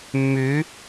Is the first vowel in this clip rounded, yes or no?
yes